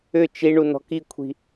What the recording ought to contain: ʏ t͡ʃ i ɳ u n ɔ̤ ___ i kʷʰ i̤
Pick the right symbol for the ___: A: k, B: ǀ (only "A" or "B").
A